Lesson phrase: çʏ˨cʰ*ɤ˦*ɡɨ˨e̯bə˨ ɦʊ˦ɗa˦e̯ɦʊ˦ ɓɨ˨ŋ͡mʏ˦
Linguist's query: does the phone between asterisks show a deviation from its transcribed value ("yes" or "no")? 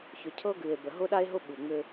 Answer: no